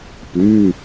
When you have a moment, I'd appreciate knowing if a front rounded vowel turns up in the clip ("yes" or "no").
yes